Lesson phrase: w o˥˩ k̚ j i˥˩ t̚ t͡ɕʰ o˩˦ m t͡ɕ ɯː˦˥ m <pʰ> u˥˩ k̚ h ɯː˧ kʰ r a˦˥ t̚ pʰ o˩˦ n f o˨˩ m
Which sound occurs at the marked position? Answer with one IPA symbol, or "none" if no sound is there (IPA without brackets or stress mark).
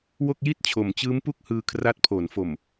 p